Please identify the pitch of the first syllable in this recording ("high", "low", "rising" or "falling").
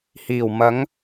low